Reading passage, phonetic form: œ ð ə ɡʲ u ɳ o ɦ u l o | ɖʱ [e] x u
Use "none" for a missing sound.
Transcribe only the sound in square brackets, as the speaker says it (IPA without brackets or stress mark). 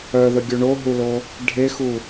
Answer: e